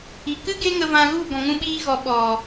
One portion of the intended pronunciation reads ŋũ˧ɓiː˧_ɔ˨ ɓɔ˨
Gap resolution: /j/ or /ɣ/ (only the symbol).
ɣ